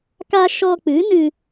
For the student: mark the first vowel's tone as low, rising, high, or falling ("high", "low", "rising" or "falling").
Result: high